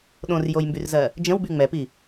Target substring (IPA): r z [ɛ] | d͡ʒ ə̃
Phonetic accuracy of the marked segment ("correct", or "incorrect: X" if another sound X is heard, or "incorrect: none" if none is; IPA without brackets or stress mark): incorrect: ɜ